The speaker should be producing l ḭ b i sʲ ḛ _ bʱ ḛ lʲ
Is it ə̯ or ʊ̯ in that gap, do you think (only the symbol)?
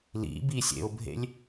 ʊ̯